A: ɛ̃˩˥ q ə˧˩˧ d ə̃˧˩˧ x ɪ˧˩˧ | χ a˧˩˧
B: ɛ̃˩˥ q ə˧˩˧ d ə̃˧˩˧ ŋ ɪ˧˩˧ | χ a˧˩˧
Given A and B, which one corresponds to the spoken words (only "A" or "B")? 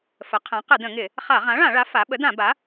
B